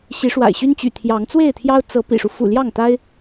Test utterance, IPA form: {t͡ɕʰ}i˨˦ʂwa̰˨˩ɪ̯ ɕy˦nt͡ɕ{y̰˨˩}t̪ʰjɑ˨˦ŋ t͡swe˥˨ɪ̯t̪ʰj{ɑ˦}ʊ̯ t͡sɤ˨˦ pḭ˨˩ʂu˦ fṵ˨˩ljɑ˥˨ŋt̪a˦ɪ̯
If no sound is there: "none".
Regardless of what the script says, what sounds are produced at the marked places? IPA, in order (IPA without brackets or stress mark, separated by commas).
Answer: ɕ, y̰˨˩, ɑ˦